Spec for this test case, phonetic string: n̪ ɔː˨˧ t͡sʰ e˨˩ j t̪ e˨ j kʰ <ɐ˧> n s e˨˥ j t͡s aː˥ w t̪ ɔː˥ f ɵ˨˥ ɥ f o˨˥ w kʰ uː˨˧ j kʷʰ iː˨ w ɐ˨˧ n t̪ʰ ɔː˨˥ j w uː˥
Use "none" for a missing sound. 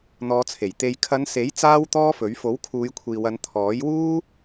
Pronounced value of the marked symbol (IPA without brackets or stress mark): ɐ˨˧